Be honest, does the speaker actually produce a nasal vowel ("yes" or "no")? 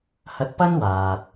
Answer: no